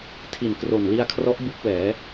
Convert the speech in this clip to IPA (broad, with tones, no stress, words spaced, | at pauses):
tʰi˨˩nkro˨˩nli˧a̯kʰrɔ˦˥ʔ bu˦˥k̚wɛː˩˦